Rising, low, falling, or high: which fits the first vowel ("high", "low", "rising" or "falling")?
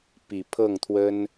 low